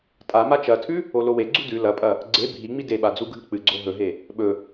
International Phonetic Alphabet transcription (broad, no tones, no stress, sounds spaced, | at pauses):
tʼ a m a t͡ʃ ɐ tʰ ʉ | o l o w e ɡ͡ǀ u d ʉ l ɐ pʼ ɐ | ɡ͡ǀ e bʱ i ŋ͡m i d e ɓ a d͡z u ɡʱ ɨ k͡p ɨ ɡ͡ǀ o ɦ ɵ ɦ e | ɓ ɵ